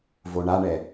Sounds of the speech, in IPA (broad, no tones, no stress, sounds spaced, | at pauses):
v o ɳ a ɳ ɛ